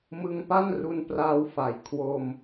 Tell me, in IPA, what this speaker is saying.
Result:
mɯ˧ŋpa˥˩n ru˧npraː˧wfa˩˦j kʰwo˧m

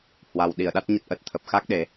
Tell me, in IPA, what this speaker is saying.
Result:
hwa˨˩wɗi˧˩ə̯ɗa˦˥t̚ɲə˦˥t̚ ʔə˨˩t̚t̪ʰə˨˩p̚xa˦˥k̚ ɗe˨˦

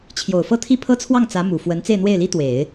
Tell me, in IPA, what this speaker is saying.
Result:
t͡ɕʰjo˨˩ʊ̯fɤ˥˧t̪ʰi˥˩ pʰɤ˥t͡sʰwɑ˥˩ŋ t͡sä˧˥ mu˨˩ fwə˧˥n t͡se˥˧ɪ̯n̪we˥˩ɪ̯li˥t̪we˨˩˦ɪ̯

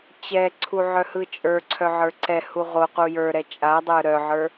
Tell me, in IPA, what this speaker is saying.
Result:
t͡ɕɛǀʰu ʕœhɯt͡ʃʼə˞ǀʰœ ʕə˞ǀɛhu ʁoqu jə˞ɾɛ t͡ʃʼadˤə˞ ɾœʕə˞

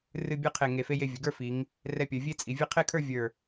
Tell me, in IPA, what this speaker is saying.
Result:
rɨ˥˧ bʲə˞˥qʰe˧˩ ŋe˧fe˥je˥˧ vʲɵ˩˧ɡə˞˥˧ fi˩˧ŋ | rɛ˧pʲə˞˩˧vʲe˥t͡sʼi˩˧ vʲe˥ qʰe˥˧kʰə˞˥˧ vʲə˞˧˩

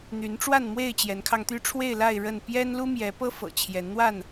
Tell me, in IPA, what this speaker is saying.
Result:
n̪y˨˦nʈ͡ʂwa˥˨nmwe˥˨ɪ̯ t͡ɕjɛ˨˦nkʰɑ˧ŋt̪y˦ ʈ͡ʂʰwe˥˨ɪ̯la˥˨ɪ̯ ɻə˥˨n pjɛ˦n lu˦mjɛ˨˦pɤ˦fɤ̰˨˩ t͡ɕʰjɛ˨˦nn̪wa˥˨n

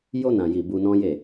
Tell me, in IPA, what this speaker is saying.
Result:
jo˧nã˨ji˨ bu˧nɔ̃˦je˦˨

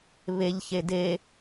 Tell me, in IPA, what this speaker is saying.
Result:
βeʎ çede

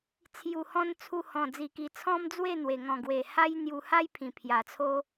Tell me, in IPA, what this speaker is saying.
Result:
t͡sʰju˨˩hɔ̃˧n t͡sʰu˧hɔ̃˨˩ d͡zi˨˩ki˨˩ t͡sʰɔ̃˦md͡zwe˥˧ n̪we˨˩ŋɔ̃˨˩ ɡwe˨˩ha˦j n̪ju˧ ha˦jpʰĩ˨˩ pʰja˨˩t͡sʰo˦

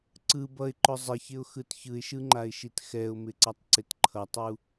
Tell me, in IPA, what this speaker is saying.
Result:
ǀɯ bʌɪ̯ǃʊ zˤɪçɪʊ̯xɯt çɯɪ̯ʃɯŋ͡ǃaɪ̯ʃit xɛʊ̯mɪǀʌtˤǀɪt ǃʰʌtˤu

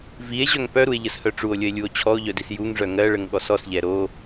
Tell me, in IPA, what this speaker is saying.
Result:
vie̯ʑœŋ pœɾue̯ʎəshœ ʈ͡ʂuo̯lʲəe̯lʲuo̯ t͡ɕʰɔo̯ʎœdis juŋʐœ ŋɜɭəŋɠɔs ɔsʎɛ ɾo

